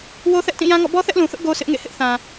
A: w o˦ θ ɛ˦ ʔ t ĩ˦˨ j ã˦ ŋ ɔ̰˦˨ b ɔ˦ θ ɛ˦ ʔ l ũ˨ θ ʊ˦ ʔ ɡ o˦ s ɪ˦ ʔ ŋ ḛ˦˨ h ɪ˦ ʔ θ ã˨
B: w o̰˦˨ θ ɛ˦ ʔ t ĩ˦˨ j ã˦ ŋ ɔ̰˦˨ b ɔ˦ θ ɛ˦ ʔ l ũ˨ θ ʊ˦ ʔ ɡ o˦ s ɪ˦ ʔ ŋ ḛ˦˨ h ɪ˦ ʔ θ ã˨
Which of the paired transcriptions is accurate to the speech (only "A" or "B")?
A